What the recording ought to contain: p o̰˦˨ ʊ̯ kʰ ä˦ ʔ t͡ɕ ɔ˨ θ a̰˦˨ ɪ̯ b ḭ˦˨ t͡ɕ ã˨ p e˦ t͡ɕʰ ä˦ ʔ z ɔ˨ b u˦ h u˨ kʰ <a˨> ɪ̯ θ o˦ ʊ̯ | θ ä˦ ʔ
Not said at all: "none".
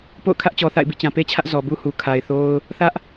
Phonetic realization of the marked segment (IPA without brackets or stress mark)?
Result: a˨